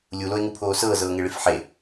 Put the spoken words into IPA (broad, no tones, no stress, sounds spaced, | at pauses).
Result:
lʲ u l o e̯ ŋ u pʰ oː s ɤː z ɤː ŋ e ɭ i f ħ e